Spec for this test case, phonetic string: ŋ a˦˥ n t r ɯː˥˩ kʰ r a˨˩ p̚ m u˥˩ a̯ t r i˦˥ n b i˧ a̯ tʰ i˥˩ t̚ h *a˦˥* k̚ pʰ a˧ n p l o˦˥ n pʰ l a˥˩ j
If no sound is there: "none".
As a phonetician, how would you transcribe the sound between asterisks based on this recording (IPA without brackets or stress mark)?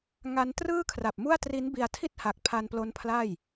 a˨˩